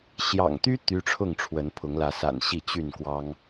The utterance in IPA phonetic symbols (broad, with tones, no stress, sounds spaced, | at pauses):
ɕ j ɑ̰˨˩ ŋ t̪ y˦ t̪ y˦ ʈ͡ʂʰ ʊ˥˨ ŋ ʈ͡ʂʰ w ə˨˦ n pʰ ʊ˨˦ ŋ l ä˨˦ s a̰˨˩ n ɕ i˥˨ t͡ɕ y˥˨ n k w ɑ˦ ŋ